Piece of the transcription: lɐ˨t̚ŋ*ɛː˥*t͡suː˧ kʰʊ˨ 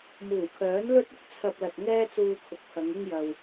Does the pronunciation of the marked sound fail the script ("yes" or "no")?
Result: no